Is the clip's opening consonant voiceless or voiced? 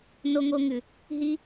voiced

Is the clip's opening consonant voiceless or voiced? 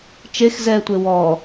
voiceless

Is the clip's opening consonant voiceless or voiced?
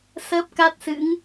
voiceless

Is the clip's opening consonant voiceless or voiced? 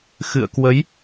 voiceless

